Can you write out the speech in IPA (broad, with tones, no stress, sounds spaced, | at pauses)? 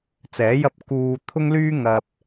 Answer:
t͡s ɛː˨˥ j ɐ˧ p̚ k uː˧ t̪ʰ ʊ˥ ŋ l yː˥ ŋ ɐ˧ p̚